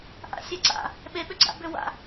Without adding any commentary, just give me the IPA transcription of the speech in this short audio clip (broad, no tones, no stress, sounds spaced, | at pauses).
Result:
ʔ a̰ sʲ a ǀ a̰ | ɓ e ɓ ʏ ɡ͡ǀ a̰ b ʏ w a̰